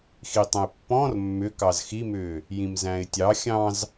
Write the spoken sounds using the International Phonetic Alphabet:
x i tˤ ə̃ ɪ̯ pː ɔ̃ r mː ʏ k ɑ z x i m ʏː | j ĩ m z æ̃ ɪ̯ tʲ ɑ xʲ ɑ̃ z

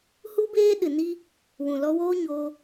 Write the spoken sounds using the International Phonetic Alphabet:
h u˦ b eː˦ ɗ ɨ˨ n i˦ | w ũ˨ l ɔ˧ w oː˦ ɲ oː˧

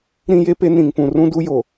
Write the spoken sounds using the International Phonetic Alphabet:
ɾ ĩ˦ j e˦ p e˦ n ĩ˨ ŋ p ũ˨ r ũ˦ d u˦ j o˨

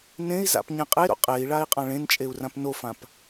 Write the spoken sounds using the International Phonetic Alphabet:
n ẽ i̯ z a̰ p ɲ ẽ qʼ e ɾ o̰ qʼ e i̯ ɭ a i̯ qʼ ã ɭ ẽ n t͡ʃʼ e u̯ r ã p n o f ã p

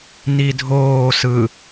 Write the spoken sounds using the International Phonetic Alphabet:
n i dʱ oː s ɯ

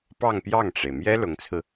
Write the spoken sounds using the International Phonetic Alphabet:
p ɑ˥˧ ŋ p j ɑ˥˩ ŋ ʈ͡ʂ e˩ ɪ̯ m j ɛ˥ l ʊ˧˥ ŋ t͡sʰ ɹ̩˧

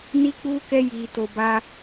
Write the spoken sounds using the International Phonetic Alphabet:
n i˦ k͡p u˦ k ɛ˦ j i˧ t o˧ b a˦

